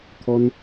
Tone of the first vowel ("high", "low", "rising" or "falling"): low